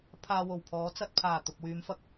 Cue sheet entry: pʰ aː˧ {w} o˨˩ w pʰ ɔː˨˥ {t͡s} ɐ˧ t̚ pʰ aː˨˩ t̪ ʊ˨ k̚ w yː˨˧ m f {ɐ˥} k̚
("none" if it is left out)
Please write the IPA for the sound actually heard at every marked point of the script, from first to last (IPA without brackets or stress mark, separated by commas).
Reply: w, t͡s, ɐ˧